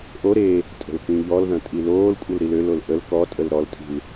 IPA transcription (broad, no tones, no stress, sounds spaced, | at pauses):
ʔ o ɾ e | tʼ ə̤ l k ĩ ʎ ɔ l ð ɐ̃ tʼ i l oː l kʷʼ ə l ɾ i l ø l o l ʔ ə l k ɔ tʼ ə l ɾ ɔ l tʼ i̤ l